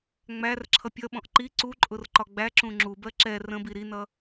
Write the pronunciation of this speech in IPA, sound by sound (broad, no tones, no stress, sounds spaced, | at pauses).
ŋ͡m æ r ǁʰ ʌ pʲ ʌ ɓ ɔ̃ ʔ ǃ i ǀ u ǃʼ ʊ r ǃ ɒ ɡ͡b æ ǁ ũ ŋ͡ǁ u b ɜ ǁ ɛ r ə̃ b i ɾ i n ʌ